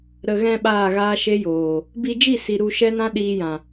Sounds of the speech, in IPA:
ɾ ə˨ ɣ ɛ̃˧ ɓ aː˦˨ ɣ aː˦ ʃ e˦ j oː˨ | b i˧ d͡ʒ i˦˨ s i˨ ɾ u˧ ʃ ɛ˦ n ã˦ ɗ iː˧ j ã˨

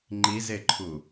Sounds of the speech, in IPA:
ŋ͡ǃ i z e ǃʰ u

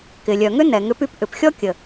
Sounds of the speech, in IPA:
k ɪ˩ lʲ œ˩ ŋ ʏ˥ n ɛ˩ ŋ ʏ˧ p y˧ p ʔ ʏ˩ p xʲ ɔ˥ kʲ ə˩

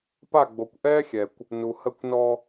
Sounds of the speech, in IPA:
p a˦˨ ɡ͡b o˨ kʷ ʔ ɛː˦ xʲ ɛ˨ kʷ | n u˨ h ə˦˨ kʷ n ɔ˦

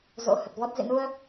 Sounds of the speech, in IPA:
z o̰˧˥ h ə˨˩ t̚ v ɔ˦˥ t̚ z ḭ˧˨ n u˧ ə̯

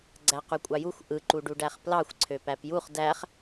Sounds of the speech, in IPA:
ɡ͡ǀ æ q y kʷʼ ɑ j u xʷ ʔ ɯ ǃ u ɖ u ɖ æ χ p l ɑ xʷ ǀʰ ø p æ p j u χ d æ χ

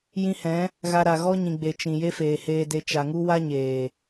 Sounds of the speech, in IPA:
j ĩ˧ h ɛ̃˨˦ | ɣ a˧ ɾ a˨ ɣ ɔ˦ ɲ ĩ˨ ɡ͡b e˨ t͡ʃ ĩ˨ j e˦ f eː˨ h eː˧ d e˧ t͡ʃ a˨ ŋ u˦ w a˦ ɲ eː˨

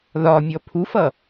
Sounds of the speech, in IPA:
ð ɒ mʲ ɔ pʰ u f ʌ

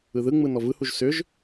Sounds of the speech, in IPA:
ɯ ð ɯ ŋ͡m ɯ n ɔ v ɯ h u ʒ s ʏ ʒ

